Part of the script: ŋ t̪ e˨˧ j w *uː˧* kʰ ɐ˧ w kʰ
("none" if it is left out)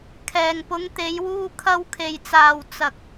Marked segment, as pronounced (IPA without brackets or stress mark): uː˧